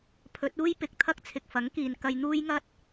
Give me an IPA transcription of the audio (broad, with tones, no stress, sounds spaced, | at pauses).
pʰ ɵ˨˥ t̚ uː˥ j p ɪ˨ k̚ t̪ʰ ɐ˥ k̚ t͡sʰ ɪ˨ k̚ f ɐ˨˥ ŋ k iː˨ n k ɐ˧ j n̪ uː˥ j ŋ ɐ˥ t̚